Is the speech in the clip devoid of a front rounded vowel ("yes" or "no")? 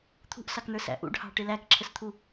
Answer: yes